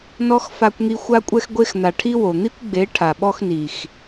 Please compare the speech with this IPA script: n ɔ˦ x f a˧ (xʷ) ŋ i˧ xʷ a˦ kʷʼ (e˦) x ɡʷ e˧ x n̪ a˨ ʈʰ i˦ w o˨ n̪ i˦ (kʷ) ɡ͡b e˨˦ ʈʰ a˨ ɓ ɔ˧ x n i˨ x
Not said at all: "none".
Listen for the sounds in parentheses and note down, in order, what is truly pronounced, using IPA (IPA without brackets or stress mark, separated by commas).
kʷ, ɛ˦, kʷ